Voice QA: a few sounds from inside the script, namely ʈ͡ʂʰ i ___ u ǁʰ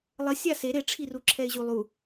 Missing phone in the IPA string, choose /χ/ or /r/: r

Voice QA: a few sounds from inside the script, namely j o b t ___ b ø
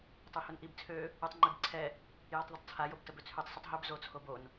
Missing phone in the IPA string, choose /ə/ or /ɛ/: ə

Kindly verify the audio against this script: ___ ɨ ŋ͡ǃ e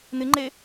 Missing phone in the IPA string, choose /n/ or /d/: n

